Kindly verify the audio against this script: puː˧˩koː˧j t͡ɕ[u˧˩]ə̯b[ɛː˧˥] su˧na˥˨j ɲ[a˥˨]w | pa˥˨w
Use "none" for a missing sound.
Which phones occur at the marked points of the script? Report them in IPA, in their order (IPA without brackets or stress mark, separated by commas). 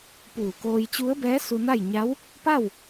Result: u˧˥, ɛː˧˥, a˧˥